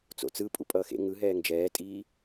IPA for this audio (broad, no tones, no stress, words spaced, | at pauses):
t͡so̰t͡sɯ pʼṵpʼʌːxḛ ŋɯɦɛːŋ d͡ʒɛːtʼiː